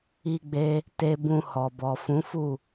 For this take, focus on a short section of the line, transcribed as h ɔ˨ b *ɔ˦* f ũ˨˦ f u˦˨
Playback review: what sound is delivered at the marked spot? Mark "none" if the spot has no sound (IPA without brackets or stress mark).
ɔ˨